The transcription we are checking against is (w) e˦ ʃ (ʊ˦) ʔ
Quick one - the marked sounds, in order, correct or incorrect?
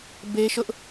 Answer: incorrect: b, correct

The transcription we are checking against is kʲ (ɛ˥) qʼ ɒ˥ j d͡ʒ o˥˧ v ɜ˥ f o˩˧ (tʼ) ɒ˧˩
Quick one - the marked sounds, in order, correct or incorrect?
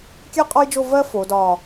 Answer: correct, incorrect: d

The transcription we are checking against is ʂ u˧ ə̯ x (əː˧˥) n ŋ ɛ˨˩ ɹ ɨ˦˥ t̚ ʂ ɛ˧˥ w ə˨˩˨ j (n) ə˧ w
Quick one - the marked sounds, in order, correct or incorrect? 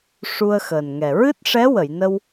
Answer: incorrect: əː˨˩, correct

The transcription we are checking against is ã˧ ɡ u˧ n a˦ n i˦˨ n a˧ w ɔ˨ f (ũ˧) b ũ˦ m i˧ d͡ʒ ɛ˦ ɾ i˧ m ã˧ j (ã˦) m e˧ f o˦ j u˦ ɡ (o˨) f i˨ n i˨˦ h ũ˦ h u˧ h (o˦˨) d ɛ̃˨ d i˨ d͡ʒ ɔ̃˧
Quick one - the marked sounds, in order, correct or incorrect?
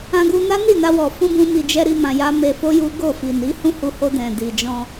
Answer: correct, incorrect: a˦, incorrect: o˦˨, incorrect: o˧

